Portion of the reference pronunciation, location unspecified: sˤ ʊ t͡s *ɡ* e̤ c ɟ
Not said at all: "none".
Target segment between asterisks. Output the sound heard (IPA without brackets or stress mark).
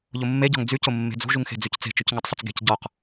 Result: ɡ